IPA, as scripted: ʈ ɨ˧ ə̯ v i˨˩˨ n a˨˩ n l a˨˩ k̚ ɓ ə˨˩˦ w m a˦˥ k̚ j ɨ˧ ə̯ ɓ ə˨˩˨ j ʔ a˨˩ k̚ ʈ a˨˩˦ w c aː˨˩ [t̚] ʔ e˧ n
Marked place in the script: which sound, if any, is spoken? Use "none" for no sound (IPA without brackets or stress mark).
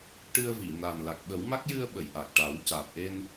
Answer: p̚